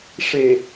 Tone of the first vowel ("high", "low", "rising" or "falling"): low